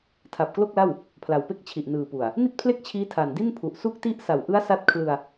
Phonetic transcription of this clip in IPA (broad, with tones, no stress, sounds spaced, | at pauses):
tʰ a˨˩ p̚ k l o˥˩ k̚ l a˥˩ w | pʰ l a˨˩ w p e˥˩ k̚ t͡ɕʰ i˨˩ ʔ n ɯː˨˩ p u˨˩ a̯ | n i˥˩ t̚ pʰ l e˥˩ k̚ t͡ɕʰ iː˦˥ tʰ a˨˩ n d i˥˩ n pʰ u˨˩ ʔ s u˥˩ k̚ t i˥˩ ʔ s a˨˩ w ʔ ɯ˦˥ a̯ s a˦˥ t̚ kʰ l ɯ˧ a̯